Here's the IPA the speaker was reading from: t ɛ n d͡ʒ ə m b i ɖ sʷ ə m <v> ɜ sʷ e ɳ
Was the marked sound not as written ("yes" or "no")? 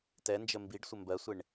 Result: yes